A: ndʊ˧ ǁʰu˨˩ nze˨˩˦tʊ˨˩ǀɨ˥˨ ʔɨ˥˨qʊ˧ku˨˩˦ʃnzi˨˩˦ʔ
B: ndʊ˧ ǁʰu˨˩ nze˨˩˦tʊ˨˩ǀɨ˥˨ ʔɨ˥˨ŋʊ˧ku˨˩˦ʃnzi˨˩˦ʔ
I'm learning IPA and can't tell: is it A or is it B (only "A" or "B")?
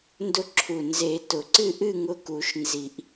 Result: B